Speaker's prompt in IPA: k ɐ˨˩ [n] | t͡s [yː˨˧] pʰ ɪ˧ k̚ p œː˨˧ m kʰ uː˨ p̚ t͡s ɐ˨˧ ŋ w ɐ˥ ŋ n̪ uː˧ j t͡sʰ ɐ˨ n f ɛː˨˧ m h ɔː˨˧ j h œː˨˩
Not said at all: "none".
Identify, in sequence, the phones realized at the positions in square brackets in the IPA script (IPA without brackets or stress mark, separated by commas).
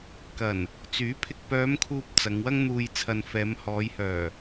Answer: n, yː˨˥